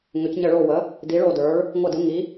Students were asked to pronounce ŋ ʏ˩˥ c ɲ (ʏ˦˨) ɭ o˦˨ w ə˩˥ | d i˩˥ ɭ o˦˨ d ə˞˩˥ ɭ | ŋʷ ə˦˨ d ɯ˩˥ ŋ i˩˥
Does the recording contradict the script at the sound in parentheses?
yes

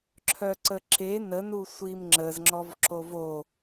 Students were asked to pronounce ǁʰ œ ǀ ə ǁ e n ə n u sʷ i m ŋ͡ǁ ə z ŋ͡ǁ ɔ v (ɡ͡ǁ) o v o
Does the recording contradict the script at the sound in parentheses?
yes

